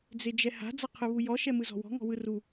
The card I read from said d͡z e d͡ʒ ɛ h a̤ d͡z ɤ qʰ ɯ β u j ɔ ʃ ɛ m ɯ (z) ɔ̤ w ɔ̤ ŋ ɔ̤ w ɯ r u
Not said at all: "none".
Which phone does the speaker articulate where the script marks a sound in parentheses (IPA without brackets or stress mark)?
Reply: z